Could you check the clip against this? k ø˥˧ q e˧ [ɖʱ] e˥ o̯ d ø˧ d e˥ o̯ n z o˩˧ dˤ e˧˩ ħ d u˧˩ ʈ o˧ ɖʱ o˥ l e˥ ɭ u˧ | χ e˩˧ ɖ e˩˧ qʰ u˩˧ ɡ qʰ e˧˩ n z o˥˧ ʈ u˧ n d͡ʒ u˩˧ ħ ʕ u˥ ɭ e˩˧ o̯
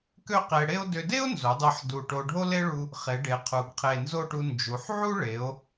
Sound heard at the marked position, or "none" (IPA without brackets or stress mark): ɽ